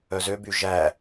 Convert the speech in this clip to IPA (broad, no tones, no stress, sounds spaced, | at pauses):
œ z ø b y ʒ æ